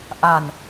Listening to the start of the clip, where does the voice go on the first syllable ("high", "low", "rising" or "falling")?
low